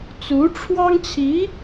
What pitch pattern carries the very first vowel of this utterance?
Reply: rising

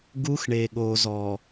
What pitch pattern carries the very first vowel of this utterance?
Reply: high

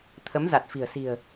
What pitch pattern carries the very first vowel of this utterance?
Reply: rising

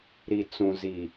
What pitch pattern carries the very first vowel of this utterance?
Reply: low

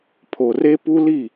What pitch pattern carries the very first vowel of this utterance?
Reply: low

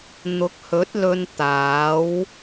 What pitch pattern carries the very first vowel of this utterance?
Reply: rising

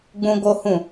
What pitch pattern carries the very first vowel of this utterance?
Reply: high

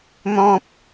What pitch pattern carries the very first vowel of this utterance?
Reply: high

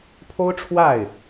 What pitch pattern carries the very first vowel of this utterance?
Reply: high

